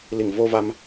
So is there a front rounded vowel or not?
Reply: no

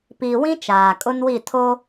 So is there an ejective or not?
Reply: yes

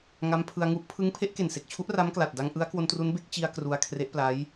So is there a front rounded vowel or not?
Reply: no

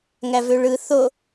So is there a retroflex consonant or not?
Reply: yes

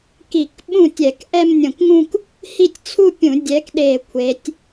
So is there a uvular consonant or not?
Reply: no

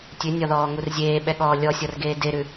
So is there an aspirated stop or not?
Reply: no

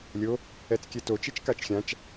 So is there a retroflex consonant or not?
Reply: no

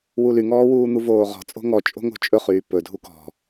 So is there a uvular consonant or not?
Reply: yes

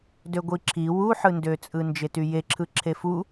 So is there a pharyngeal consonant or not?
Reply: yes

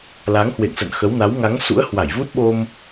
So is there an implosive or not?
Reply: yes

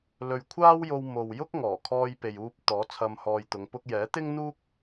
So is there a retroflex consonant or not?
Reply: no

